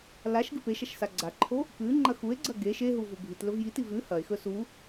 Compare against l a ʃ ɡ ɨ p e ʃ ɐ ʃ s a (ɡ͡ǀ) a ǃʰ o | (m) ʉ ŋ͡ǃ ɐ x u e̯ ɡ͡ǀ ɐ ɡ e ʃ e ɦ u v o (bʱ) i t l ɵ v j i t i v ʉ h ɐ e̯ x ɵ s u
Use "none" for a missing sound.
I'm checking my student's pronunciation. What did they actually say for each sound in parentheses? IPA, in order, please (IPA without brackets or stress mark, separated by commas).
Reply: ɡ͡ǀ, p, bʱ